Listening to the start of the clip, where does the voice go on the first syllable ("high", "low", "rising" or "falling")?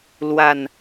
falling